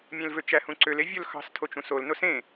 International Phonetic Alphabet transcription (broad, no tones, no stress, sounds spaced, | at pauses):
mʲ ẽ l v ø t͡ʃ æ h ũ ǀ ø l e vʲ o l x ɑ̤ s tʰ o t͡ʃ ũ s o l n o s ẽ